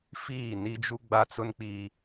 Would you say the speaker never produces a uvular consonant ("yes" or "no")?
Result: yes